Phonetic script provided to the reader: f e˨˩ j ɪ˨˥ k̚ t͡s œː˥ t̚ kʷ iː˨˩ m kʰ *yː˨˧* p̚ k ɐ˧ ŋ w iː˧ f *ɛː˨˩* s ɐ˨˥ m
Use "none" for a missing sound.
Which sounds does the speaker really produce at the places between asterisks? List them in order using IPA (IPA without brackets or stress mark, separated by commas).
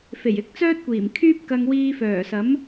yː˥, œː˨˩